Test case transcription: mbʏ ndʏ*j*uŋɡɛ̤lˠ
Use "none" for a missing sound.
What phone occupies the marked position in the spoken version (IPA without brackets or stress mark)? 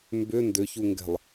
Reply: ç